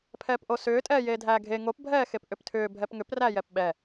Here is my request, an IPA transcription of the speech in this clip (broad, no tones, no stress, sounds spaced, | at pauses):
pʰ ɛː p ʔ o s ʏː tʼ ɛː j eː dʱ æː ɡʱ e ŋ o p bʱ ɛː x e p ʔ ʏ p tʰ ʏː bʱ ɛ p ŋ ʏ p r æ j ɛ p ɓ ɛ